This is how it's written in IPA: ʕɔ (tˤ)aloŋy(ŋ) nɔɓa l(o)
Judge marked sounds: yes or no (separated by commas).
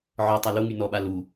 yes, no, no